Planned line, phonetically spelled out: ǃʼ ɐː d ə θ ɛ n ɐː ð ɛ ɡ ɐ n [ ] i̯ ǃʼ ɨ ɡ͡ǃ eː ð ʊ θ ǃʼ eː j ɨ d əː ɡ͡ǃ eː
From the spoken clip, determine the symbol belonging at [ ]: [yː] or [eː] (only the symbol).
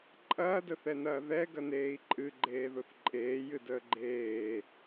eː